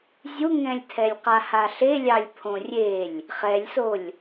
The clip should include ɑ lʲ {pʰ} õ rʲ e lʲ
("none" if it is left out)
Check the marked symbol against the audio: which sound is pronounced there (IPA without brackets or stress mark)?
pʰ